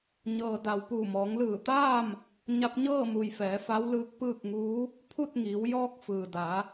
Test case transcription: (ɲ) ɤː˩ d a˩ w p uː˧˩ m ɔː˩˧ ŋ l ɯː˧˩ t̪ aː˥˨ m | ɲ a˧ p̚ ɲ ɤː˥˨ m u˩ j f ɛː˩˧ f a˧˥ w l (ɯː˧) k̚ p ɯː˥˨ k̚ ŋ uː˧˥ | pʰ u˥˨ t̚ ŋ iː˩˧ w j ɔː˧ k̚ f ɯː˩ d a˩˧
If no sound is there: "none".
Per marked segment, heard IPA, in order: ɲ, ɯː˧

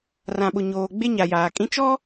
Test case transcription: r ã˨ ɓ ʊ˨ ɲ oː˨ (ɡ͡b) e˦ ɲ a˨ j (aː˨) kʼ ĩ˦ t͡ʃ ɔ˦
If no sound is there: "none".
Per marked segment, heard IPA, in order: ɡ͡b, aː˨

